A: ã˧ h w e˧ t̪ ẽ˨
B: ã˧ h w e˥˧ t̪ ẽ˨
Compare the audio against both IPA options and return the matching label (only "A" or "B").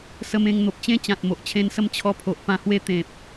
A